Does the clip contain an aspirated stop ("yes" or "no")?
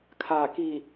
yes